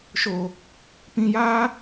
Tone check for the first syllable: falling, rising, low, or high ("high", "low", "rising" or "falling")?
low